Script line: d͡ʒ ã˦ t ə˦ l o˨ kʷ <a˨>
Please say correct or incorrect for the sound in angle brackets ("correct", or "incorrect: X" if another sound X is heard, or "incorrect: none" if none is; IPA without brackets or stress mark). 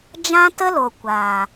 incorrect: aː˨